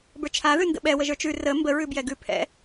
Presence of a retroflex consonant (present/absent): absent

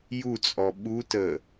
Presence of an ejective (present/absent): present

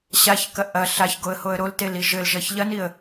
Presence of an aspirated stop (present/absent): absent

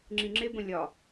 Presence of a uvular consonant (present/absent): absent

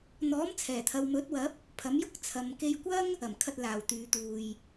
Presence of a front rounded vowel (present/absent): present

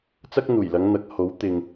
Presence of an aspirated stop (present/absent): absent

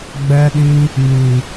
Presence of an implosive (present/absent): present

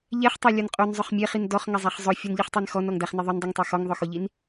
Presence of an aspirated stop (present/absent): absent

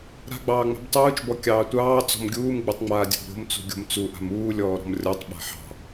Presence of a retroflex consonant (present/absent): absent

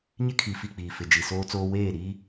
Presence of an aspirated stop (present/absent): present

